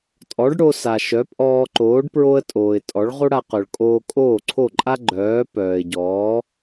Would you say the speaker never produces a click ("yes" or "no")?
no